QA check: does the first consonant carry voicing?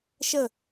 no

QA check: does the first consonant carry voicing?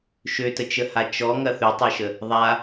no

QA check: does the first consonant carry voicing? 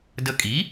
yes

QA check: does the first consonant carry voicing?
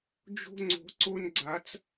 yes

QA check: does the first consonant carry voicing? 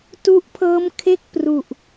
no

